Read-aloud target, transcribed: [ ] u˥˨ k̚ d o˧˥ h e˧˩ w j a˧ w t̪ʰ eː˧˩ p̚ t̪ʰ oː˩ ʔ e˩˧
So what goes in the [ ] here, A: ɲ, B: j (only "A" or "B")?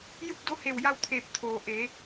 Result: B